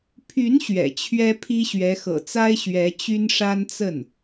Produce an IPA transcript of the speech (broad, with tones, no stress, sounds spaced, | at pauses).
pʰ y˧˥ n ɕ ɥ ɛ̰˨˩ t͡ɕʰ ɥ ɛ˥ pʰ i˥ ɕ ɥ ɛ˧˥ x ɤ̰˨˩ t͡s a˥ ɪ̯ ɕ ɥ ɛ˧˥ t͡ɕ y˥ n ʂ a˥ n t͡s ə˥˩ n